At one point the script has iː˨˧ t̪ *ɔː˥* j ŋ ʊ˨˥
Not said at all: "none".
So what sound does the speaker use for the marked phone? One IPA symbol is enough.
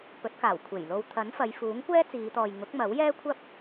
ɔː˨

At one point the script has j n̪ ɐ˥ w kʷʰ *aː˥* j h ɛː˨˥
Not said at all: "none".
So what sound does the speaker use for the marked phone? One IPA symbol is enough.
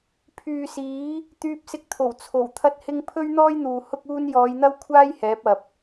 aː˥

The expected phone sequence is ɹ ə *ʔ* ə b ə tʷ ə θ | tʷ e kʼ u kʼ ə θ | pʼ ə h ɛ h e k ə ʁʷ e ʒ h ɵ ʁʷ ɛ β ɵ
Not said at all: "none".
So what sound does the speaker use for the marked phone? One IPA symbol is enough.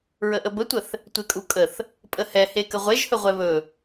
ʔ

